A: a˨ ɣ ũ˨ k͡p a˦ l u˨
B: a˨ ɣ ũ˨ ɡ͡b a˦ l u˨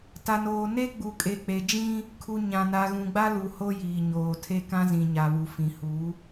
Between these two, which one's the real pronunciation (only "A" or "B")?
B